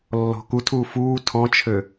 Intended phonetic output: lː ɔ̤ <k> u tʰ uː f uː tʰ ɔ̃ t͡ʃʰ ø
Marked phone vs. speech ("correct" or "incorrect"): correct